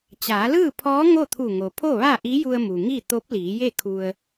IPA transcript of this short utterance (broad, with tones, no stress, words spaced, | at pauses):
t͡ɕaː˩˧lɯː˥˨pʰɔː˧˥ ŋo˥˨t̪ʰu˧˩ŋo˩ pʰo˥˨ʋa˥˨ʔi˧˥ju˧ə̯ mu˩ŋi˥˨ t̪o˧˥p̚liː˩˧je˥˨ kʰu˧ə̯